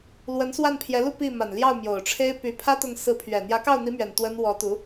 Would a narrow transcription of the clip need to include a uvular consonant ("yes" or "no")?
no